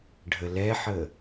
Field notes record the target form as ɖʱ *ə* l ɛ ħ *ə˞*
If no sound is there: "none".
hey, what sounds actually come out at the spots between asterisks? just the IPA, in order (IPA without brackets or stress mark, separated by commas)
ə, ə